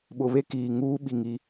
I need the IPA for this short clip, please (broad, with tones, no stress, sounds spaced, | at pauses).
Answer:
ɓ ʊ˨ β e˦ k iː˨ ŋ uː˦ ɓ i˨ ŋ i˨˦